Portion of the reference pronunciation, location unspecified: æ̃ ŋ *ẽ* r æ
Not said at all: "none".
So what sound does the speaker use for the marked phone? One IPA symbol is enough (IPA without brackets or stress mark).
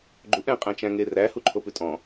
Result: e